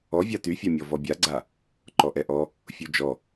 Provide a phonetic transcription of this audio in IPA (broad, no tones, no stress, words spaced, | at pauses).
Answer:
ɔvʲa tyfʲamʲɔ vɔbʲaɡ͡ǀa | ǃɔʔɛʔɔ | fʲud͡ʒɔ